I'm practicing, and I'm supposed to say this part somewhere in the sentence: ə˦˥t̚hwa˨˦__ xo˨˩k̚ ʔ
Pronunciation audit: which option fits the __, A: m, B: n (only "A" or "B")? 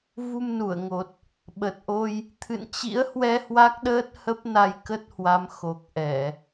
A